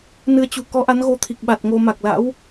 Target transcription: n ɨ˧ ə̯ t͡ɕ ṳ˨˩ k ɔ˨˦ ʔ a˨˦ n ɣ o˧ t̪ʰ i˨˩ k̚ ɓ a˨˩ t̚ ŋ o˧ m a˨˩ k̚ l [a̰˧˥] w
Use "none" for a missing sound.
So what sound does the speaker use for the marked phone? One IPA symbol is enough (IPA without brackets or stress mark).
a̰˧˥